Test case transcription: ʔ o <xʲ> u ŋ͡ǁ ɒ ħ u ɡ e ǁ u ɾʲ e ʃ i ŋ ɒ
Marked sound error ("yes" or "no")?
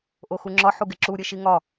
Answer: yes